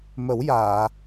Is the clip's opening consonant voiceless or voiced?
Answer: voiced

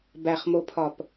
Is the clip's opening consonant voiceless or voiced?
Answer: voiced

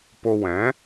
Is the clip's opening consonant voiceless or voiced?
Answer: voiceless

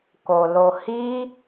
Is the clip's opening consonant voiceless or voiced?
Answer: voiceless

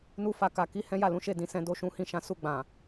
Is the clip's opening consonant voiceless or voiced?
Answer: voiced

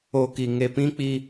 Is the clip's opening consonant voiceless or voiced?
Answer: voiceless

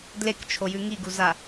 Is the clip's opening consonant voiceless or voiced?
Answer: voiced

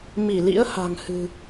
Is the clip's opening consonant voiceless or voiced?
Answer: voiced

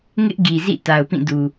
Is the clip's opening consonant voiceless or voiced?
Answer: voiced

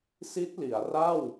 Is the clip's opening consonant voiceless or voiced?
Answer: voiceless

